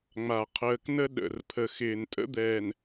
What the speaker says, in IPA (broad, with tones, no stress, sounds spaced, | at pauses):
ŋ͡m a˨ qʰ əː˨ k n ə˦ ɗ ə̰˨ r pʰ ə˨ x ɪː˨ n tʼ ə̰˦ d̪ ɛː˨ n